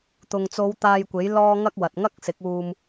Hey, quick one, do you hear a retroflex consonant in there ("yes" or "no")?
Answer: no